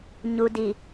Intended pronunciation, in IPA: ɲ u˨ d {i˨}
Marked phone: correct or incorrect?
correct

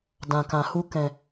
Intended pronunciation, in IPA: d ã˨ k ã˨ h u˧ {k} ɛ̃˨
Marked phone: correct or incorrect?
correct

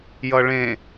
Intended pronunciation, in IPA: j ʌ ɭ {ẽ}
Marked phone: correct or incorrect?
correct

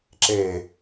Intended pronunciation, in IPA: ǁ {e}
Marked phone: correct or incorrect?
correct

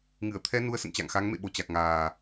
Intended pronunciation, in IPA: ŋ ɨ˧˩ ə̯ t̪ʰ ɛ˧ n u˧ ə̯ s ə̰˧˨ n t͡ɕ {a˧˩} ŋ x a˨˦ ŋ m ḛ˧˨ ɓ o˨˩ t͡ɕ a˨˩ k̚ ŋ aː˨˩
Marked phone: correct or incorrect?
incorrect: a̰˧˨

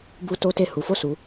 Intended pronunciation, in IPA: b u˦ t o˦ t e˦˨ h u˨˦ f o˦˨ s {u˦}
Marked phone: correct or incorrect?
incorrect: u˨˦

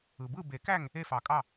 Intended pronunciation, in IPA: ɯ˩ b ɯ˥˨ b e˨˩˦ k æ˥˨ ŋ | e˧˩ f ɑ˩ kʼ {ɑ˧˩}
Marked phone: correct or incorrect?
correct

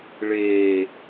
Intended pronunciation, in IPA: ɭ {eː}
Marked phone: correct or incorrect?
correct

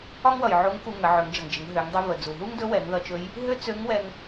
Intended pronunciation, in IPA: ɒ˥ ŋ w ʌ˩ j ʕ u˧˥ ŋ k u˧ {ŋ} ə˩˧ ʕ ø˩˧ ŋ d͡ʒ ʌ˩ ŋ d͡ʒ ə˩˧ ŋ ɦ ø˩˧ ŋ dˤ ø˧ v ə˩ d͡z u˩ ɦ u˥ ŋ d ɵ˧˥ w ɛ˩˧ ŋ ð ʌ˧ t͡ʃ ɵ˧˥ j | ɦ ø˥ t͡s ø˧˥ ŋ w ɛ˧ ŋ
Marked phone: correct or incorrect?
correct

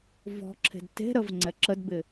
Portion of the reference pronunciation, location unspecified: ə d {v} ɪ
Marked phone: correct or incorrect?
incorrect: b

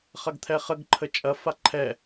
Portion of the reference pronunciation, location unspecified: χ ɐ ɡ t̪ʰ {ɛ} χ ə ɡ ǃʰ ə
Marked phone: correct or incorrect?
correct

